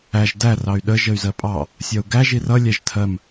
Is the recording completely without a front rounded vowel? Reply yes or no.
no